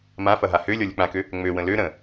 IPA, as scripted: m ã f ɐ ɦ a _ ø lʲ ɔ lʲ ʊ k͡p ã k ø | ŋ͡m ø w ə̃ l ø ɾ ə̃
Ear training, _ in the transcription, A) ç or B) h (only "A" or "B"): B